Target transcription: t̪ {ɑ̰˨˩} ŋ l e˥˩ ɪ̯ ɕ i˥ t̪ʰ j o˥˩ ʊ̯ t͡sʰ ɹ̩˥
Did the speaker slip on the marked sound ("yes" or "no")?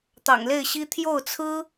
no